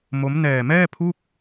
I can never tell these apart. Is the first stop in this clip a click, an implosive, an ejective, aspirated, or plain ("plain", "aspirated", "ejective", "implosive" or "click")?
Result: aspirated